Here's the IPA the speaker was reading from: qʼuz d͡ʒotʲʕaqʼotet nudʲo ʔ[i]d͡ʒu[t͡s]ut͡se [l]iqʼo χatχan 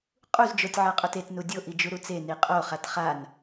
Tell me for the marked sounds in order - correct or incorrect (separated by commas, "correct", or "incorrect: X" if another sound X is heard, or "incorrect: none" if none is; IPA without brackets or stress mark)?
correct, incorrect: ɾ, incorrect: n